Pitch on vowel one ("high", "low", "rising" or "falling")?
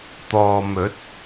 low